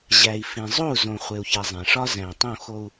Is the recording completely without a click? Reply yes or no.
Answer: yes